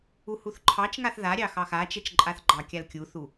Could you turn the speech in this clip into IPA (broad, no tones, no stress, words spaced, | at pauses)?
uhuθǃʰɑt͡ʃŋaθ ðaɾʲɑ xɑxat͡ʃɛt͡ʃ ǃʼaθɡ͡ǃɑkʲal kʲuθu